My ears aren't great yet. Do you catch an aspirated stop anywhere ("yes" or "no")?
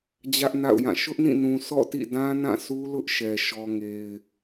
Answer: no